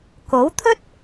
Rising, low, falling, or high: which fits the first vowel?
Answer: rising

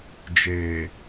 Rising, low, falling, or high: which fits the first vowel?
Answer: low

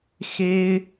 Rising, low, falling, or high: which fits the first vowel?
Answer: high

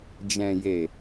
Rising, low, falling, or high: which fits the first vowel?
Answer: low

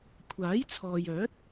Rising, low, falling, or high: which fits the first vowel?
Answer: rising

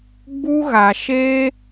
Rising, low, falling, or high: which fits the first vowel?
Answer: high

